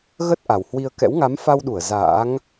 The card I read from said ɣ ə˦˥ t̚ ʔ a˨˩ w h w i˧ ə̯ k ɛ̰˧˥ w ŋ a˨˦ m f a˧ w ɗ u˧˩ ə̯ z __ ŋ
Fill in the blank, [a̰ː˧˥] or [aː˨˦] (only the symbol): a̰ː˧˥